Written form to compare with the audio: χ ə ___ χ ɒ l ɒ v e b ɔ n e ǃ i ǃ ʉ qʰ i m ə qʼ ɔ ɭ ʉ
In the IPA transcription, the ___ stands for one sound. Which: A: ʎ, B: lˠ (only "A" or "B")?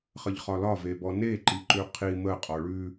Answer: A